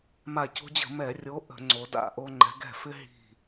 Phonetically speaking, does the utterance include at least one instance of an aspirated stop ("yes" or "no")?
no